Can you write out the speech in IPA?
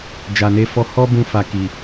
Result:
d͡ʒ a˨ n e˧ f ɔ˧ h ɔ˦ b ũ˦ f a˧ k i˨

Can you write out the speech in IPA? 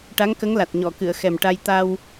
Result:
ʈ a˧˥ ŋ k ə˧˥ ŋ l a˨˩ t̚ ɲ ɔ˨˩˨ k ɨ˨˩˨ ə̯ x ɛ˨˩ m ʈ a˧ j t̪ a˧ w

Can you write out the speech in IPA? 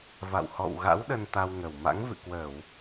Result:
v a̰˧˨ w h ɔ̰˧˨ w ɣ a̰˧˥ w ɗ ə˧ n t̪ a˧ w ŋ ə˨˩ w m a̰˧˥ ŋ v ɨ̰˧˨ k w əː˧˩˨ w

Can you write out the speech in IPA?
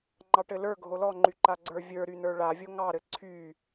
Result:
ŋ͡ǃ ɑ ʈ ɘ l ə˞ ɡʱ o l ɔ ŋ͡ǃ y ǃ a ɡ͡ǀ ə˞ vʲ ə˞ ɾ y n ə˞ ɭ a vʲ o ŋ ɑ ɾ ɘ ǀʰ y

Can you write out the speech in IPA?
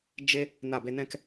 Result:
d͡ʒ e˦ | n a˦˨ b e˦ n ɛ̃˦ k

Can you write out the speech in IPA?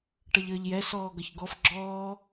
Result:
ʈ ʌ ʎ əː ʎ j ɛ s ɔː ɡ ʌ ç ɡ ɔ f ɡ͡ǁ ɔː

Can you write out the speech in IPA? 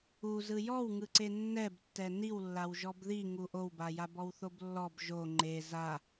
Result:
u z ɯ j ɔ w ŋ ɯ ǀ e nː ɛ b tː ɛ n i w lː a w ʒ ɔ b ð i ŋ u ʔ o w b a j a b ɔ w θ o b lː ɔ b ʒ o ŋ͡ǃ e z a

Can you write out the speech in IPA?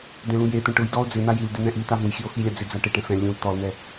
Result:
d ɛ̃ l ũ j e t̪ ɛ̃ ʈ ʊ j d ɔ o̯ d͡z ɪ n̪ a j i l d ɪ n̪ ɛ̃ ʔ i t̪ a v ũ j x i o̯ x i lʲ a d͡z ɪ d͡z a ʈ ɪ ʈ ɛ̃ f ɛ̃ lʲ ũ l t̪ ɔ l n̪ ɛ

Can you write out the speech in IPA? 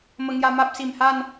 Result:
m ə˧ ŋ j a˧ m a˦ p̚ s i˨˩ m h a˥˧ n

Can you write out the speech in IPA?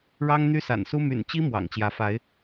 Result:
ɻ ɑ˦ ŋ n̪ y˦ s a̰˨˩ n s u˦ m y̰˨˩ n t͡ɕ i˦ m w ɑ̰˨˩ ŋ t͡ɕ j ä˨˦ f a˨˦ ɪ̯

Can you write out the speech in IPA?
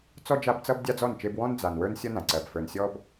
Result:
t͡s ɔ˦ d͡ʒ a˦ b t͡s ʌ˦ b dʲ a˦ d͡z ɔ˦˨ n t͡ʃ e˦ b w ɔ̃˦ n d͡z a˨ n w ə˞˦ n sʲ ʌ˦ n ã˨ ǀ ɜ˨ b f ə˞˨ n sʲ ɔ˦ b

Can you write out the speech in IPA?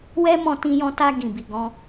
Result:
w ɛ˦ m ɔ̃˧ t ĩ˧ j ɔ̃˧ t a˧ ɡ ĩ˨ b i˨ ɡ ɔ̃˧

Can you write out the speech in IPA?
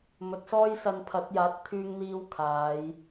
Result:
m ɵ˨˥ t̚ s ɔː˥ j s ɐ˧ n pʰ ɐ˨˥ t̚ j aː˨˥ t̚ t̪ʰ yː˧ ŋ n̪ iː˧ w kʰ aː˨˧ j

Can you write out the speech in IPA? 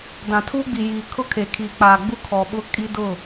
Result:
d ã˨ tʰ uː˦ ɡ͡b i˨ j iː˨ kʰ ʊ˦ kʰ e˨ kʰ iː˨ k͡p aː˨ ɡ͡b u˦ kʰ ɔ˨ ɓ ʊ˦ kʼ i˦ d ʊ˦˨

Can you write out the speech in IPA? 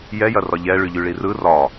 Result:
j ɛ j ɐ r ɒ ʎ ɛ ɭ y ʎ y ɭ i r ɯ r ɒ

